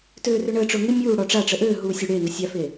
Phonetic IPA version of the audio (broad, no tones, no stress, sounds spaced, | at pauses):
t øː r ʏ ɳ əː ʈ͡ʂ ʊː ŋ ɪ mʲ uː ɽ ɔ ʈ͡ʂ a ʈ͡ʂ ə ʔ øː ɦ uː sʲ ø ɽ eː ŋ ə sʲ a f e